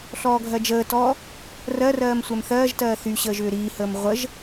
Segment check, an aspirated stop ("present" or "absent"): absent